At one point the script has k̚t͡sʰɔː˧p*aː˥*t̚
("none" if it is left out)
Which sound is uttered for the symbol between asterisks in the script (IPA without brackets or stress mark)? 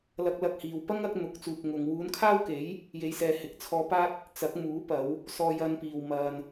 aː˥